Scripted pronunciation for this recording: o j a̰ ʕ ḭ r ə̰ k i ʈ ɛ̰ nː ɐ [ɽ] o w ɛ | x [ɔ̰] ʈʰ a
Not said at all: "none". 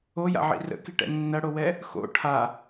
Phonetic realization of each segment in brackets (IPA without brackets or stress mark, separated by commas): ɽ, o̰